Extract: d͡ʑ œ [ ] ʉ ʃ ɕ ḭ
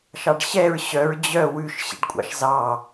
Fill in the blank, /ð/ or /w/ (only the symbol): w